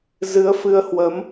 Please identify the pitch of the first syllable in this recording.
rising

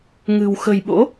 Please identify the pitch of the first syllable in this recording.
low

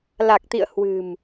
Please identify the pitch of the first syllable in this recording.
low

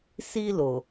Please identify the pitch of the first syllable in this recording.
high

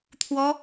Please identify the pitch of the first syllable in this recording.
high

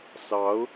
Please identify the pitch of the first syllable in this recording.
rising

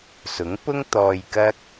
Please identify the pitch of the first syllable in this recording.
rising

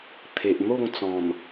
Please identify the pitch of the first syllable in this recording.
low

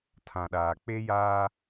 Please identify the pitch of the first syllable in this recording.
low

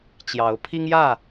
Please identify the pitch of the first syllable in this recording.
rising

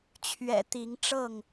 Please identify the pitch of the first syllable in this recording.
low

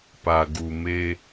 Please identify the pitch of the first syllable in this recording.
low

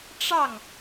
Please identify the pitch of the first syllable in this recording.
falling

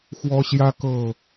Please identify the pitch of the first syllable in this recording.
high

